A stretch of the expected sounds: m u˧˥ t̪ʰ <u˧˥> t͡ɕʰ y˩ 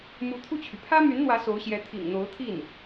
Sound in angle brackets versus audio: incorrect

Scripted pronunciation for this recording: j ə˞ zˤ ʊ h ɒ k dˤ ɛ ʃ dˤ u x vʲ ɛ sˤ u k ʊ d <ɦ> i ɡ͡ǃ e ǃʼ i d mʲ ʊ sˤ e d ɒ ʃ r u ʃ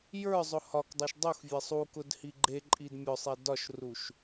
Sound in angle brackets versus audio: incorrect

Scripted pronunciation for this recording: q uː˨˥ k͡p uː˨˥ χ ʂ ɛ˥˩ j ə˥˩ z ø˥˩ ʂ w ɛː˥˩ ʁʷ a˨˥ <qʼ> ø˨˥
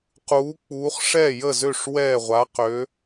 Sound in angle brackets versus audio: incorrect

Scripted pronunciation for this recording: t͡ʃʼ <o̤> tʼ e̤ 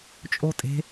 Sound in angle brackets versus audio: incorrect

